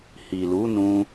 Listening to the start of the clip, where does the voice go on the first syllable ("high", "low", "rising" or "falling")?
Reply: low